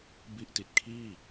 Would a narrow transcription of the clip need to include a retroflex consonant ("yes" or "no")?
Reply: no